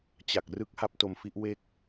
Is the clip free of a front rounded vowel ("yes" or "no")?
yes